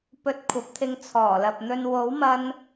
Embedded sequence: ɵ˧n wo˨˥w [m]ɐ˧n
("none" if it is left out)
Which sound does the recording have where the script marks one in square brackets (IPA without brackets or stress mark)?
m